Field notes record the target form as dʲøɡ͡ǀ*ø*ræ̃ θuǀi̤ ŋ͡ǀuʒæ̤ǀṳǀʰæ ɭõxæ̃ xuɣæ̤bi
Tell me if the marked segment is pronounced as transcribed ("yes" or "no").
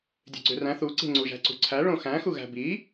yes